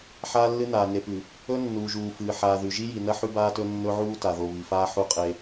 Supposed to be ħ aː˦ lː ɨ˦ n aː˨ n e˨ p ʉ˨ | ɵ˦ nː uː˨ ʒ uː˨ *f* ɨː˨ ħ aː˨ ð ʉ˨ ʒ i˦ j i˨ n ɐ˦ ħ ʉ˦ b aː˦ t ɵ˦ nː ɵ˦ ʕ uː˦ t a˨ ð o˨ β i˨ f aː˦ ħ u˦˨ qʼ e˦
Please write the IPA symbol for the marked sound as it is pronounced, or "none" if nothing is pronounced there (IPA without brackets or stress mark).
f